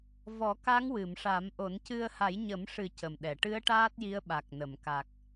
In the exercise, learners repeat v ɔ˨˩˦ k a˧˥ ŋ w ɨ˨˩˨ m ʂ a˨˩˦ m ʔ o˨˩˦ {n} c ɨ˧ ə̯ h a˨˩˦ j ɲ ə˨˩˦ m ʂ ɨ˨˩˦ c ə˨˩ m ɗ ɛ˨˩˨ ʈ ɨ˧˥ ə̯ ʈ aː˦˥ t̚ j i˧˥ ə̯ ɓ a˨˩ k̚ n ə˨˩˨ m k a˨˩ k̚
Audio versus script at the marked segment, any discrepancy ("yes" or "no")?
no